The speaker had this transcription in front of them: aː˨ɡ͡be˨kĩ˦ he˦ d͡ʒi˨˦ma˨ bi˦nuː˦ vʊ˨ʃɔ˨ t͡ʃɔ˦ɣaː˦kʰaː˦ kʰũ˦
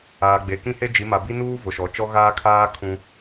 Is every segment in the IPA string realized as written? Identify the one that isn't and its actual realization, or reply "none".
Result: none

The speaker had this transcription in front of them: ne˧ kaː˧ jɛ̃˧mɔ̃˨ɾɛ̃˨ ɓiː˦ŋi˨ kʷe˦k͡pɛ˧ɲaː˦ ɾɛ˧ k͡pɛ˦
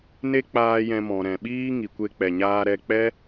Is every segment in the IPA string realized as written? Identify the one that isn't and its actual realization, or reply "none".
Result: k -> k͡p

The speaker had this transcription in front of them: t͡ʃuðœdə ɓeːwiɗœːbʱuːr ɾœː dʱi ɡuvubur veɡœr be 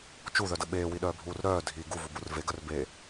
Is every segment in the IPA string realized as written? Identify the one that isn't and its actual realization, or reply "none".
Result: none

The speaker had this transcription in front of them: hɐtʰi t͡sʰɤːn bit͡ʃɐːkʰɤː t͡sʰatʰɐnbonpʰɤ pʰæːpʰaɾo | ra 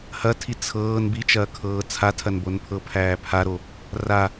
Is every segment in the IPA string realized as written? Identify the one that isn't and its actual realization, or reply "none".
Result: none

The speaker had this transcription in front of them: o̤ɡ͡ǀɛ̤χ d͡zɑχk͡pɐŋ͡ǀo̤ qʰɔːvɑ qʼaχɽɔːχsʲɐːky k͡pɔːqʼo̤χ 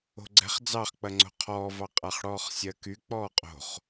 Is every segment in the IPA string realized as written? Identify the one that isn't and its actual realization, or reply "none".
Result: none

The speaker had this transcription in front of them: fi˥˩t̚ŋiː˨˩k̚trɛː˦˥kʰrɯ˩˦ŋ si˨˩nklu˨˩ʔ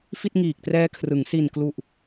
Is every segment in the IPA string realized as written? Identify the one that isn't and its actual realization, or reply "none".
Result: none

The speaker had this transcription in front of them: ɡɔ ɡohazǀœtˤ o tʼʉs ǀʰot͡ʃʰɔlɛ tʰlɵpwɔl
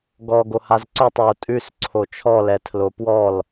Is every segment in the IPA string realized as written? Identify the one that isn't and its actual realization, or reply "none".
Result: ɵ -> o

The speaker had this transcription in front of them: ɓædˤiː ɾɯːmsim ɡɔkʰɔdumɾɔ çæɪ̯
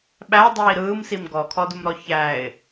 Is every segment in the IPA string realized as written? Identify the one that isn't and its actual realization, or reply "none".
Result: none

